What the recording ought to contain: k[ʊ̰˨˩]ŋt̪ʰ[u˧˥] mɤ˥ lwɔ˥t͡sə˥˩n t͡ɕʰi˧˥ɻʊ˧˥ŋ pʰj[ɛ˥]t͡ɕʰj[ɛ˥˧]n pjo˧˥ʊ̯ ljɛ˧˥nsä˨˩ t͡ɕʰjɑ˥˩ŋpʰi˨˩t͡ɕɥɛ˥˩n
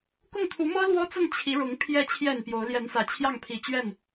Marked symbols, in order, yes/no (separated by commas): no, yes, no, no